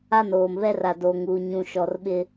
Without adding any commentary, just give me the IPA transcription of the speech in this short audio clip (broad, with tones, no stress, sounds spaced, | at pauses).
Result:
a˦ n oː˨ m β ɛ˦ r a˨ d oː˨ ŋ uː˨ ɲ ũ˨ ʃ ɔ˨ r ɓ ɪ˦